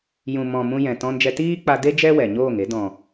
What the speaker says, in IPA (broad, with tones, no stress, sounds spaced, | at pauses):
j ũ˨ m ɔ̃˨ m ũ˧ j ɛ̃˨ t ɔ̃˧ n d͡ʒ ɛ˧ t iː˦ k͡p a˧ d e˦ d͡ʒ ɛ˦ w ɛ˨ ɲ oː˦˨ ŋ e˨˦ d ɔ̃˨